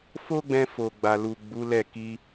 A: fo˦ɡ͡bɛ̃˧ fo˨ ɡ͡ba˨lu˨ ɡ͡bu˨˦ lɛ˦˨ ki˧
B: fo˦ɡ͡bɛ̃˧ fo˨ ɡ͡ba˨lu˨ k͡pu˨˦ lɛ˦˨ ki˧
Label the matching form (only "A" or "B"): A